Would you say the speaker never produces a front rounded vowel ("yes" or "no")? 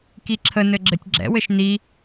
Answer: yes